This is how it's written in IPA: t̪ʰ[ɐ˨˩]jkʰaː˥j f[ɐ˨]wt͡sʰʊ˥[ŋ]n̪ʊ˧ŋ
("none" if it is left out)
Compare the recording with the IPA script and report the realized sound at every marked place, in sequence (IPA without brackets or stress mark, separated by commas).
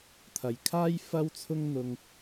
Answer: ɐ˨, ɐ˥, ŋ